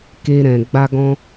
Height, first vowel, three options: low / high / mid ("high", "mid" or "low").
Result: mid